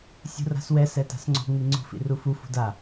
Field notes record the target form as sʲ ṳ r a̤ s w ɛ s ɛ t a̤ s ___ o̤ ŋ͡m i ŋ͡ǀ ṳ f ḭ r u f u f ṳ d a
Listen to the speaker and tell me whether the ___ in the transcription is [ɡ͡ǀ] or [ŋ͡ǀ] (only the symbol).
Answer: ŋ͡ǀ